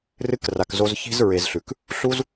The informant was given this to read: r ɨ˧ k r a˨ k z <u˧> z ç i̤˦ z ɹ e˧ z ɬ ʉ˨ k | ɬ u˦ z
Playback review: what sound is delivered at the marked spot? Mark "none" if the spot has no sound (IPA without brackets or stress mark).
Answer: o˧